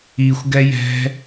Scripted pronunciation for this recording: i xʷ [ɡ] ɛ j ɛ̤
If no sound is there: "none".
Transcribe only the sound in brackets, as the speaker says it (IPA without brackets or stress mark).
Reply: ɡ